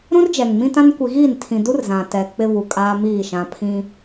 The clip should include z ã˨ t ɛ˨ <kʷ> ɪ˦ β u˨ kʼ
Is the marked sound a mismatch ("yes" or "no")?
yes